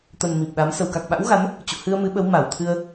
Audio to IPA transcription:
t̪ə˨˩n mi˨˩p̚ɗa˨˦m sə˧˩wka˨˩k̚ɓa̰˧˥wɣa˨˦n | t͡ɕṵ˧˨ hɨ˧ə̯mɨ˨˦ɓə˨˦w ma˧˩wt̪ʰɨ˧ə̯

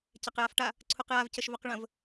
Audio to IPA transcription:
cɛqjafʈa | ǀʰuqjavcəʃ vœqɭə̃v

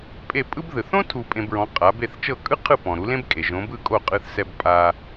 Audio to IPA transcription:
pʼe˥˩ pʼɯ˥b ðɯ˩θõ˥ tʰu˧pʼẽ˧bɹɔ̃˩˥ qʼa˩˥be˥˩θ t͡ʃɤ˥˩kʼɯ˥ qʰɯ˥˩pɔ̃˩ɾu˩˥ lẽ˥bkʼe˩ ʒõ˩˥bɯ˥˩ kʼo˥˩qʼɯ˧θsɛ˧b pʼa˧

